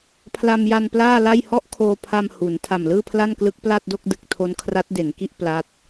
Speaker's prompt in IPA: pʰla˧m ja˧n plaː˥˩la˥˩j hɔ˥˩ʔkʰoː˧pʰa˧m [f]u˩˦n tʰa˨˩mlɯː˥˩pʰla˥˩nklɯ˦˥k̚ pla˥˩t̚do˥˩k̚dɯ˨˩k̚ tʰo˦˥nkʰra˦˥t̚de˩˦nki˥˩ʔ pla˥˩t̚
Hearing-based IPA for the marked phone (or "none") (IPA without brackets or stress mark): h